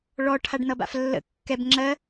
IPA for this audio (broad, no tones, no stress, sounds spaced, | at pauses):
ɭ ɔ ʈʰ a ɖ n ʌ b a̰ f lː ə̰ kː ɛ b ŋ͡ǁ ɜ